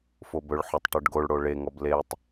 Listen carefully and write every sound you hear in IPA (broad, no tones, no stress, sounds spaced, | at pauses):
f o b ɵ ɭ ħ o tˤ ʈ ɵ ɖ ɡ o ɭ ɽ o ɭ e ŋ ɔ b l e tˤ